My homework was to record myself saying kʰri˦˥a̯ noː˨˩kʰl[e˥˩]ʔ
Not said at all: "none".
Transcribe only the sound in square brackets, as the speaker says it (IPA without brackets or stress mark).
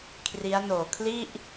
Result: i˥˩